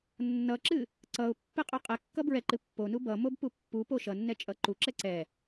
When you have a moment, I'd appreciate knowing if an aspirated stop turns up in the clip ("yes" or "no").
no